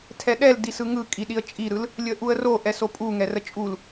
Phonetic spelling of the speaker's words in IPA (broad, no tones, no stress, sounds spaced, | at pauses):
tʰ ɛ ɗ ɛ l d i s ɯ ŋ ɯ kʼ i ɗ i ə̯ t͡ʃʼ i ɾ ɯ l | lʲ ə ʔ u ə̯ r o ʔ ɛ s o pʼ u ŋ ɛ r ə t͡ʃʼ u l